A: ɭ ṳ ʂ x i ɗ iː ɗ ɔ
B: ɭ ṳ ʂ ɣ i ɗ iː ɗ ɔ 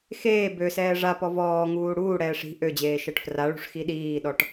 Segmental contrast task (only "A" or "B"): A